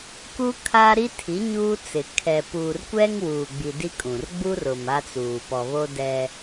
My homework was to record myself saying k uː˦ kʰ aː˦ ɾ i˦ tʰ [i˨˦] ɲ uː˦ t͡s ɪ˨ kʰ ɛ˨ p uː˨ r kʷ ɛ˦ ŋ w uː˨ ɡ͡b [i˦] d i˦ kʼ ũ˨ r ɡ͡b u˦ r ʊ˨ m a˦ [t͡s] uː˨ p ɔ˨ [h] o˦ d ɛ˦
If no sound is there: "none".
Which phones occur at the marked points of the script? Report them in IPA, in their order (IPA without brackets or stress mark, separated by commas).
i˨˦, i˨, t͡s, β